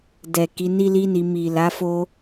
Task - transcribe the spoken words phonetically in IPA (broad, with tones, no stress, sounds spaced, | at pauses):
d ɛ˨ k i˨˦ n i˦ l i˦ n i˧ m i˨ l a˨˦ f o˦